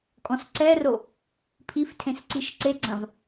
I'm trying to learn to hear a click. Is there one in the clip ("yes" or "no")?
yes